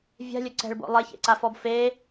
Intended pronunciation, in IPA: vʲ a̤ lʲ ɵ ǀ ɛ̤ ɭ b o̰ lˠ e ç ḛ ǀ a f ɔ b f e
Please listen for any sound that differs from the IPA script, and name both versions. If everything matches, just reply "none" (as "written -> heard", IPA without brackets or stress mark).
none